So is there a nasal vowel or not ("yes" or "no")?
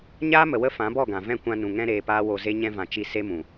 yes